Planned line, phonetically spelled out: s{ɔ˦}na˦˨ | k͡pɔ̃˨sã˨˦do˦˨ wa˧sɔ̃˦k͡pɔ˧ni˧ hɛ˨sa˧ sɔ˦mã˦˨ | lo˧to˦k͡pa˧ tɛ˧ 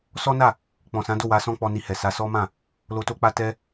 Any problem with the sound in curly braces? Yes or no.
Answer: no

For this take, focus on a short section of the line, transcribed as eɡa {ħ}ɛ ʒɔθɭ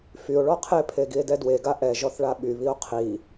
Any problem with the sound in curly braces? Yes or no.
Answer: yes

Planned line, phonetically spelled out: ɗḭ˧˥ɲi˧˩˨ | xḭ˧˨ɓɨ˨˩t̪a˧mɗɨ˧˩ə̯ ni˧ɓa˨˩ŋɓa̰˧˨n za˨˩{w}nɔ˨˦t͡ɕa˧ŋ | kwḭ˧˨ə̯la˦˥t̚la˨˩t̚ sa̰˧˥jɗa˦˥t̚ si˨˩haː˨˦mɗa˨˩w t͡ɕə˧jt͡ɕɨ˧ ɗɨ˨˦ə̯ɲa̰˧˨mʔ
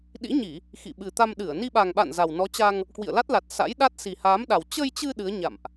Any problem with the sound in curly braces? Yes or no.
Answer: no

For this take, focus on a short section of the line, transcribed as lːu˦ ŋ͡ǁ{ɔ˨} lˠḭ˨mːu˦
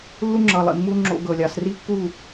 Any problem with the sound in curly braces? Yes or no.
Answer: yes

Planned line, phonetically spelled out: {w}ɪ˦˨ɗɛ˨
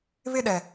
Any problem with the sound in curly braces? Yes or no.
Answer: yes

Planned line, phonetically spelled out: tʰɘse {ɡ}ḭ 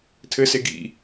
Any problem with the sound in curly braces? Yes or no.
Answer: no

